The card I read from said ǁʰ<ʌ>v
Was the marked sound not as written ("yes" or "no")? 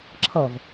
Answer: no